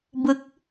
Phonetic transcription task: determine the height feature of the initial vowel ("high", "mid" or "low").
high